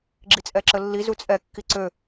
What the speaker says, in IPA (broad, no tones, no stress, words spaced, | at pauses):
ɡ͡ǁit͡sʼɛǁəlːi zut͡sʼɛ kːiǀø